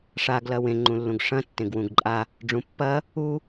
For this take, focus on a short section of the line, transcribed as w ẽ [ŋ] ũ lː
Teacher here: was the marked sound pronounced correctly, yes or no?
no